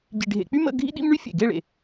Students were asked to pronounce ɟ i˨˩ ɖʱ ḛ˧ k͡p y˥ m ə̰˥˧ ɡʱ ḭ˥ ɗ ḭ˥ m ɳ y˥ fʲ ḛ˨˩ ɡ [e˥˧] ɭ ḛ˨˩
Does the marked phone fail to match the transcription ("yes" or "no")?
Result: no